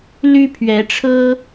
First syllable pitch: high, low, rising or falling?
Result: high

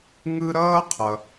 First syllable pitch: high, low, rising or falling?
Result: high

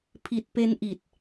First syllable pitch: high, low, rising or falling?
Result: low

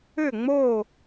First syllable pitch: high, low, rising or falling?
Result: falling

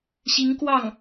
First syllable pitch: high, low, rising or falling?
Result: rising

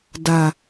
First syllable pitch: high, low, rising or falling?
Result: low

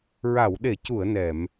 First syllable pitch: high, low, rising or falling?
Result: low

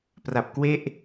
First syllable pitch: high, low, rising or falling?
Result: low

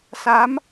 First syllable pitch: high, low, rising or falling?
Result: rising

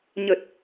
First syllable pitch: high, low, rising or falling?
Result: low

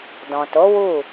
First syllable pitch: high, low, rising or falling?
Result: low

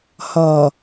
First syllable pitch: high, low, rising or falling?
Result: low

